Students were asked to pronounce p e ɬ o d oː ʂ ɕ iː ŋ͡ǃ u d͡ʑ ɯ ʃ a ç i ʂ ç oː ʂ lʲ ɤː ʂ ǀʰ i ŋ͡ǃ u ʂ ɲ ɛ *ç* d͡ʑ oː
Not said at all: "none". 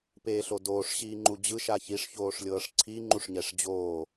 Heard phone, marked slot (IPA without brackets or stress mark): ʂ